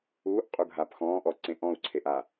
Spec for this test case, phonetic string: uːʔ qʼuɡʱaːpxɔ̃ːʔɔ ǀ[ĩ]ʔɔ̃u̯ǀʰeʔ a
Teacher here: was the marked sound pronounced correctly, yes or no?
no